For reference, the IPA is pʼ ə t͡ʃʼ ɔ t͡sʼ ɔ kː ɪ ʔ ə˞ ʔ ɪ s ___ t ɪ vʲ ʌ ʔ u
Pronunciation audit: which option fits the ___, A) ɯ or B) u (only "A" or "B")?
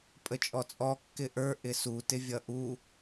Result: B